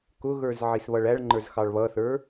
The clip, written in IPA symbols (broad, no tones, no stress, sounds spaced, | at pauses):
k ʊ ɣ ə˞ z ʕ i s β ʌ ɭ æ ɭ ŋ͡ǃ ə˞ z x ɑ ɭ β ʌ θ ə˞